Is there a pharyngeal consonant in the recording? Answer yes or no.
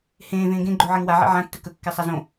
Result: yes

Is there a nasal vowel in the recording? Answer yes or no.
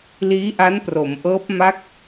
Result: no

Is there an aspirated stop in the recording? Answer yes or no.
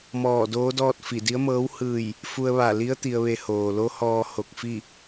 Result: no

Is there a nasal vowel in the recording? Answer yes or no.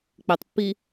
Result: no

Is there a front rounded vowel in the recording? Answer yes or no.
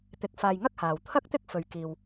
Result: no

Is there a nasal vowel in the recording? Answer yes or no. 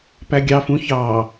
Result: yes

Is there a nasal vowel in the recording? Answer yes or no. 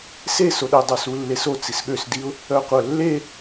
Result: no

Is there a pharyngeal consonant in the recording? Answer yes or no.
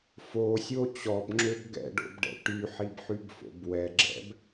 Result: yes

